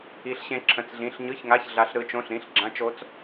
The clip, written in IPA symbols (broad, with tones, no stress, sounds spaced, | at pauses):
i˦˥ ɬ ɕ ẽ˦˥ ǁʰ ə̃˧˥˧ t͡s ɮ ĩ˧˥˧ ɬ ɲ ɯ˧˥˧ ç ŋ a˧˥˧ ç ɮ a˦˥ ɬ ɾ ɯ˦˥ t͡ʃ õ˧˥˧ ɬ ɾ ĩ˧˥˧ ɬ ɡ͡ǁ ã˦˥ t͡ʃ o˦˥ t͡s